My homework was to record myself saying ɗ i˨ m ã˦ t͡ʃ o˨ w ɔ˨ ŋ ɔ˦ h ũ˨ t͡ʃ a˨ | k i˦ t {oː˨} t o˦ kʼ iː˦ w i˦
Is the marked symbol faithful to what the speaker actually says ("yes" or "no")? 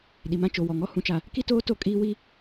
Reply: no